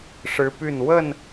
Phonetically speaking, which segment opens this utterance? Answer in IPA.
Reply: ʂ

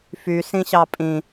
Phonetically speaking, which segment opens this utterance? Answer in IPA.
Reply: f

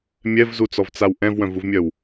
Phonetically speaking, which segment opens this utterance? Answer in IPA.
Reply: mʲ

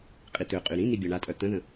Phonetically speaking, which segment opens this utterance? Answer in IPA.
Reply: qʼ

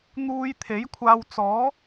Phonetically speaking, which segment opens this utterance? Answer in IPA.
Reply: n̪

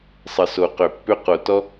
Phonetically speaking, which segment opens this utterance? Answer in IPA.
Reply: sˤ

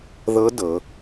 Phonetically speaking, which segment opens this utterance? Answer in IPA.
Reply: ð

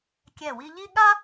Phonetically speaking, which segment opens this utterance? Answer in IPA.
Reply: kʲ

